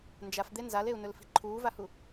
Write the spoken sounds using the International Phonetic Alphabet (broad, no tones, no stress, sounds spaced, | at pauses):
n d͡ʒ a f d̪ e n z a l e u̯ n ɵ l f i̤ ǃʰ uː v a h u